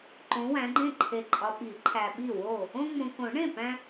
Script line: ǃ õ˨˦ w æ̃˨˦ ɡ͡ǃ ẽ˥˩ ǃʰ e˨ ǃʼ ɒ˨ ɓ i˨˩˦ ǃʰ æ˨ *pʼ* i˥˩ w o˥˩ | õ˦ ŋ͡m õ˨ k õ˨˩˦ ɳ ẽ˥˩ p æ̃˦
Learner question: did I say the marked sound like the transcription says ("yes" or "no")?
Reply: no